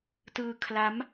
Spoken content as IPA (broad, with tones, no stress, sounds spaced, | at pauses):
t ɯː˧ kʰ l a˦˥ m